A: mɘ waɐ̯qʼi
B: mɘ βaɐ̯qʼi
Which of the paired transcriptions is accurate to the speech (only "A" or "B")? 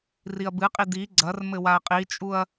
A